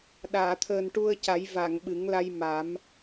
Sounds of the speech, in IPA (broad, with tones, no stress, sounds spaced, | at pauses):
ɗ aː˨˩˨ t̪ʰ əː˨˩ n ʈ u˧ ə̯ c a˨˩˦ j v a˨˩˨ ŋ ɓ ɨ˨˩˦ ŋ l a˧ j m a˨˩˦ m